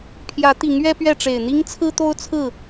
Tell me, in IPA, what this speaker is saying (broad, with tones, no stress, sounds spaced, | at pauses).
pʰ j ä˨˦ t̪ i˨˦ ŋ ɥ ɛ˦ p ɥ ɛ˥˨ ʈ͡ʂ e˨˩ ɪ̯ n̪ i˦ ŋ t͡sʰ ɹ̩˦ t̪ o˦ ʊ̯ t͡sʰ ɹ̩˥˨